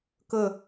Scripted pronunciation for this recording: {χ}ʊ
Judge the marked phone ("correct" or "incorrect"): incorrect